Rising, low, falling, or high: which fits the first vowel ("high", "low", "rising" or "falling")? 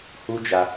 high